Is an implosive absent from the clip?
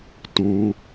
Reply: yes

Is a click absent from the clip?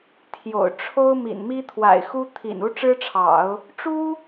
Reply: yes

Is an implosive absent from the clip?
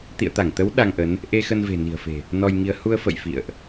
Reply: no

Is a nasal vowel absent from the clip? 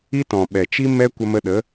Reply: no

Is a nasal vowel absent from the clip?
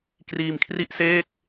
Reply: yes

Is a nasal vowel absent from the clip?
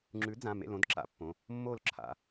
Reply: no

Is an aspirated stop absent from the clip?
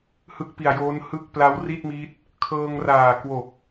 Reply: no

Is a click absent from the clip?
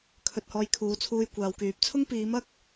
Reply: yes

